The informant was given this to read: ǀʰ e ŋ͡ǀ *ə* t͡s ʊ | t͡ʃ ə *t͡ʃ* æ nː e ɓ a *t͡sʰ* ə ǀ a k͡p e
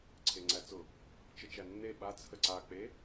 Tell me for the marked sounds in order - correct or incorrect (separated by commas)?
incorrect, correct, correct